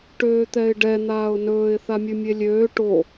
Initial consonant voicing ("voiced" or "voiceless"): voiceless